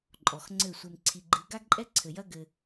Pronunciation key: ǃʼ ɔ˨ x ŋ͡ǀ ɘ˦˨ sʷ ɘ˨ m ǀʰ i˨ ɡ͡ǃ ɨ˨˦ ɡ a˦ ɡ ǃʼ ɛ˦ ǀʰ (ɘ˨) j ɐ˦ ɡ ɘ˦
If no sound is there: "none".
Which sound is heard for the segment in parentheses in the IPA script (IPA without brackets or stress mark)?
ɘ˨